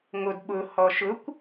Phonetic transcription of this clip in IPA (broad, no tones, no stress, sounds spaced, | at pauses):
ŋ o d ɓ ʊ h ɔ ʃ ʊ kʷ